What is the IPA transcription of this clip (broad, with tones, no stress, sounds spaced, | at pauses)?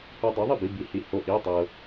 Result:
h o˧ dˤ ɤ˨˥ ðˤ ə˥˩ b i˧˥˧ b i˨˥ h i˧ h o˧˥˧ ʔ i˧˥˧ tˤ ɤ˧